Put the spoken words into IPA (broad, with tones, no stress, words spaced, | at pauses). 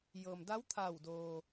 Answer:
jɤː˩mda˧˥wt̪ʰa˧˩wdoː˩